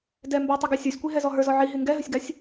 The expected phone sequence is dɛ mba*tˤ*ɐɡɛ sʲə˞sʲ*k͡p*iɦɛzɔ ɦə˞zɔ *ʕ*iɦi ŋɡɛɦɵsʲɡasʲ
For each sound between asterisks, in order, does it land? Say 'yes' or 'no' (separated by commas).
yes, no, yes